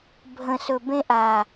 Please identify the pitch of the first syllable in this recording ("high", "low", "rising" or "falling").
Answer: low